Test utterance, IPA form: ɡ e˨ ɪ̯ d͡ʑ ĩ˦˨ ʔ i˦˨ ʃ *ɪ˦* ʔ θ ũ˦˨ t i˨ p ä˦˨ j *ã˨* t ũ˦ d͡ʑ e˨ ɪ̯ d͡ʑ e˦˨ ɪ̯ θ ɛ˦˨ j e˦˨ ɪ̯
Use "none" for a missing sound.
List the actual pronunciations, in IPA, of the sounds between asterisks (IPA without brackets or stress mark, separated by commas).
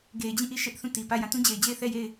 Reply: ɛ˦, ã˨